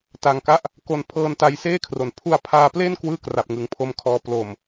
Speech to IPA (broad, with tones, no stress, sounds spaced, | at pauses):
t a˧ ŋ k a˦˥ ʔ | k o˧ n pʰ ɤː˧ n t a˧ j s eː˥˩ kʰ r o˩˦ n pʰ u˧ a̯ pʰ aː˧ p l e˥˩ n k w ɯː˥˩ k r a˨˩ p̚ ŋ ɯ˩˦ ŋ pʰ o˦˥ m kʰ ɔː˧ p l o˨˩ m